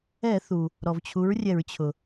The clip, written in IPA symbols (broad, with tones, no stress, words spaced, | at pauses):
ɛ˧˩˧θu˩ | ɾɔ˩vt͡ɕʰu˩˥ɹrʲɛ˧˩˧ɹt͡ɕʰʊ˩